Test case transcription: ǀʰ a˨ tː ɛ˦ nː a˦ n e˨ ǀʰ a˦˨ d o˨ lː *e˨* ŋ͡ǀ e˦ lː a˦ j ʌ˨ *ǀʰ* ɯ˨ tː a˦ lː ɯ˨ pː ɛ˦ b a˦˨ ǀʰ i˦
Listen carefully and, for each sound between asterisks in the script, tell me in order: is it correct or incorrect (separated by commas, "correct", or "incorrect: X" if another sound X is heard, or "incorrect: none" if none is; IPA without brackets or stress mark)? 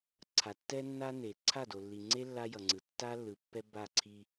incorrect: i˨, incorrect: ŋ͡ǀ